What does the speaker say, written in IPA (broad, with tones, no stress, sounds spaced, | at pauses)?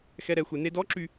x ɛ˧ ɾ ɛ˩˧ xʷ e˩˧ n e˧ d ɔ˧˥ ǁ y˧